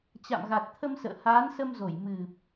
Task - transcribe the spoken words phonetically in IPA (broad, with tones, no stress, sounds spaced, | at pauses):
t͡ɕ a̰˧˨ m ɣ a˨˩ t̚ t̪ʰ ə˧ m s ə̰ː˧˨ h aː˨˦ n s ə˧ m z o˧˩ j m ɨ˨˩ p̚